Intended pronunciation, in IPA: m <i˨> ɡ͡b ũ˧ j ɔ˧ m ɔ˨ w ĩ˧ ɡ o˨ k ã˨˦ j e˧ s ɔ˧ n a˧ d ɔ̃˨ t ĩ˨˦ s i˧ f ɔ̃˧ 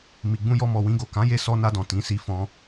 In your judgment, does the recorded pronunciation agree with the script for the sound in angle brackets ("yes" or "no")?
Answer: yes